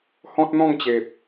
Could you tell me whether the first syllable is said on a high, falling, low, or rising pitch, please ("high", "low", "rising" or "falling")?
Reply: high